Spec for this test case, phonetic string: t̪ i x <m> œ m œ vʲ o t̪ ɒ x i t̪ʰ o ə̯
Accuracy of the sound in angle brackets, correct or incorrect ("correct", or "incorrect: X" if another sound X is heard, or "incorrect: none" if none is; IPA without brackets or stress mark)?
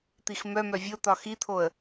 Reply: correct